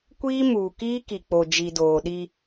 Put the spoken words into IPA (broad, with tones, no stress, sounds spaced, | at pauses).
kʷ iː˦ m uː˨ k iː˦ k i˨ k͡p o˨ d͡ʒ i˨ d oː˨ ɗ i˦